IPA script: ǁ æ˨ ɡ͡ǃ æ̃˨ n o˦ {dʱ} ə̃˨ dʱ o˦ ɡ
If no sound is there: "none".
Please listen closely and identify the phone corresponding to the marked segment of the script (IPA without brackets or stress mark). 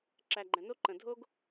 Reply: ǃ